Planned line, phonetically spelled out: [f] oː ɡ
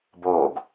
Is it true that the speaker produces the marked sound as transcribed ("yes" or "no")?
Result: no